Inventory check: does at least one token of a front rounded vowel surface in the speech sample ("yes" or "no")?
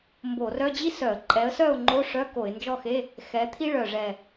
yes